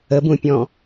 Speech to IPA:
ə b ũ pʲ ɔ̃

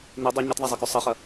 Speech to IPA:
n i dˤ ɵ ɲ ɐ t ðˤ a zˤ i k ʉ sˤ ɐ χ ɐ

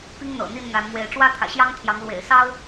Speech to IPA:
p i˦ ŋ n̪ ɤ̰˨˩ n̪ i˥˨ n n̪ a˨˦ n m w e˨˦ ɪ̯ ʈ͡ʂ w ä˦ t̪ʰ ä̰˨˩ ɕ j ɑ˦ ŋ t̪ʰ j ɑ˨˦ ŋ l w ḛ˨˩ ɪ̯ s ɑ˦ ʊ̯

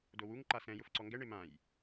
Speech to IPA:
d o w u ŋ ǃ a s ɛ̃ j ʊ f ǀ ɔ ŋ ɡ ɛ ɳ e m ã j

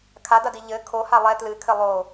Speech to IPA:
kʰ a d ɐ d i ʎ ɘ kʰ o h a lˠ ɛ t l ɨ kʰ ɘ lˠ o

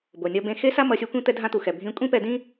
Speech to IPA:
b o˩ nʲ ʌ˧ b ẽ˧ x e˥ s a˥ m ʌ˧ sʲ o˥ kʷ ĩ˥ t̪ ɛ˧ dʱ ã˧ t̪ u˩ x ɛ˩ bʱ ĩ˧ kʷʼ ĩ˥ p ɛ˧ d ĩ˥

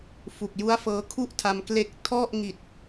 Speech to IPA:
f u˨˩ k̚ j u˦˥ a̯ f ɤː˦˥ kʰ u˥˩ ʔ tʰ a˧ m k l e˦˥ k̚ tʰ ɔ˥˩ ʔ ŋ i˨˩ t̚

